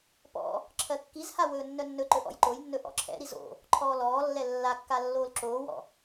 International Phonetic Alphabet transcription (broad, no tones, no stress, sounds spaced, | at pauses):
p ɔ̰ | ǁʰ ɜ kː i z h a w ɵː nː œ nː ɵ ǃ ɵ ʔ ɔ̰ j ǃ o j nː ɵ ʔ ɔ̰ ǁʰ ɛ̰ ɾ i z o̰ | ǃʰ ɔː l ɔː lː ɛ lː a kː a lː oː l ǁ oː w ɔ̰